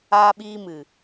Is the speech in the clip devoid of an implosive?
no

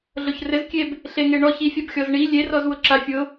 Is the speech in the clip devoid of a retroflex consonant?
no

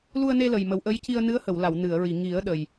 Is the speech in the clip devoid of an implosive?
no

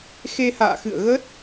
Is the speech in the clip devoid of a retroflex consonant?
yes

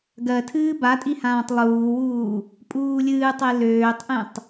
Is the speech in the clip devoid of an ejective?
no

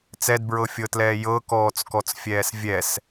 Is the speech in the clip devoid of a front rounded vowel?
yes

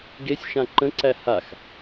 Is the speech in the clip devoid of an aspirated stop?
yes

